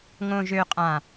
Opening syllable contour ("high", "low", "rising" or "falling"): low